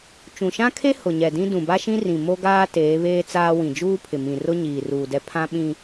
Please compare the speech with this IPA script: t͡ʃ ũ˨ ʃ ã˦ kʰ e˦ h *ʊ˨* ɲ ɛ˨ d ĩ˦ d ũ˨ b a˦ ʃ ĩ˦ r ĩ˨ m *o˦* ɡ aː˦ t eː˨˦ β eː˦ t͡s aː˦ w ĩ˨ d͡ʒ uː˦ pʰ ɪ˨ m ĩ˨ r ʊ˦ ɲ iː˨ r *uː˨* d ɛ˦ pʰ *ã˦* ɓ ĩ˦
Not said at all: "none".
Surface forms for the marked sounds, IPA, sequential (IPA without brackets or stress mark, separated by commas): ʊ˨, o˦, uː˨, ã˦